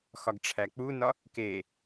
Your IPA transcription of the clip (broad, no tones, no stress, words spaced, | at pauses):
xɒɡʈ͡ʂʰæk͡punɒ | ke